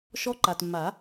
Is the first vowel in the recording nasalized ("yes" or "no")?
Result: no